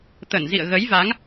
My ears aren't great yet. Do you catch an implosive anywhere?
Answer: no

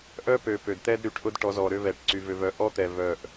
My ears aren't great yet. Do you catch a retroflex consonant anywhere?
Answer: yes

